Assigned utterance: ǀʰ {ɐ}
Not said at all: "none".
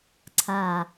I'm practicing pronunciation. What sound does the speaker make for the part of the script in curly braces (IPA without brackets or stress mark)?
a